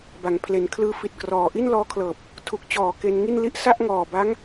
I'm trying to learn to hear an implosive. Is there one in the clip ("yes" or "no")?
no